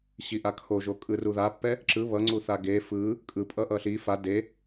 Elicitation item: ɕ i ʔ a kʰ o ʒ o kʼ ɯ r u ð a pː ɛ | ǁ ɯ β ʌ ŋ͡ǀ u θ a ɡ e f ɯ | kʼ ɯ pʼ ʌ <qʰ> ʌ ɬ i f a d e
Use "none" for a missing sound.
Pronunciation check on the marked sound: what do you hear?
ʔ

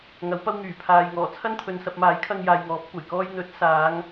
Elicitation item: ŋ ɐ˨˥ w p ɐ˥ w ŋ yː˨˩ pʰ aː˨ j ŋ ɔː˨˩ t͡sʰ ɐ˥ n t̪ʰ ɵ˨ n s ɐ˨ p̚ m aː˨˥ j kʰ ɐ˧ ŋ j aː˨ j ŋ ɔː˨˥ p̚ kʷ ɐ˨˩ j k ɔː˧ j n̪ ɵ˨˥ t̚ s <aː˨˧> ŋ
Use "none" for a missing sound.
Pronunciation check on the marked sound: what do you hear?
aː˨˧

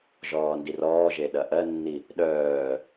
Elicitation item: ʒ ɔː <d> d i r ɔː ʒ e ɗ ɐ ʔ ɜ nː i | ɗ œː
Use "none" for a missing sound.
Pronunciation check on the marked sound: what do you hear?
n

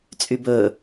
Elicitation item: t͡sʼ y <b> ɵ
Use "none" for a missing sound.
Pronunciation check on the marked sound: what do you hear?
b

